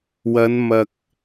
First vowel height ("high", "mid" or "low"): low